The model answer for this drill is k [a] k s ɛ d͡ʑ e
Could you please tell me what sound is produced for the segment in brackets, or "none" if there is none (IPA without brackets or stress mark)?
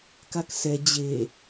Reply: a